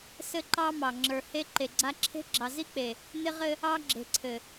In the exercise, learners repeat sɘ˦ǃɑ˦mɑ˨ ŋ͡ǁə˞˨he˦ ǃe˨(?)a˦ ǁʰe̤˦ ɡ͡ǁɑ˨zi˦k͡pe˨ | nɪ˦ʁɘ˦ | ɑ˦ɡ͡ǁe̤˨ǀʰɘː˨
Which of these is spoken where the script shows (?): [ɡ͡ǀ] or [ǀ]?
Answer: ɡ͡ǀ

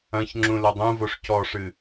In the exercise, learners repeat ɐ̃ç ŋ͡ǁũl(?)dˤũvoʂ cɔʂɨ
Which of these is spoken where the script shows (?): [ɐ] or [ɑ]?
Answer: ɐ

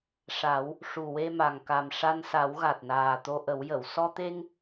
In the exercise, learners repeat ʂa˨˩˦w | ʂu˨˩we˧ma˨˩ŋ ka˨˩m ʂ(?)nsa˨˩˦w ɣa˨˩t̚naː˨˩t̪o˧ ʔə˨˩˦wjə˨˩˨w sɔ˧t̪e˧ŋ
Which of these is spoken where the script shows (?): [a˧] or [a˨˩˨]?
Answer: a˧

